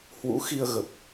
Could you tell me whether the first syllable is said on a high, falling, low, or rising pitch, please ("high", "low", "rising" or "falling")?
rising